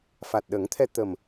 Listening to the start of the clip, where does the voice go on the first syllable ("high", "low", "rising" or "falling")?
low